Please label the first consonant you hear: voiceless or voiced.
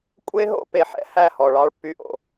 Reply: voiceless